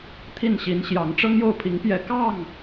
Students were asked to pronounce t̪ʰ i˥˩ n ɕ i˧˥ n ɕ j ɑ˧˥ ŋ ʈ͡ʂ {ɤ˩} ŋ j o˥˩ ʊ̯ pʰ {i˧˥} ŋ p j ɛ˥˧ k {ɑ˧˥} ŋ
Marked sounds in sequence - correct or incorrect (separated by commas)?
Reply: incorrect, correct, incorrect